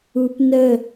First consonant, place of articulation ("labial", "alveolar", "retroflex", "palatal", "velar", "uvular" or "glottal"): labial